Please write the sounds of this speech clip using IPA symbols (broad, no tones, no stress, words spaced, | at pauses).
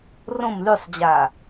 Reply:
rõm lysˤd͡ʑaː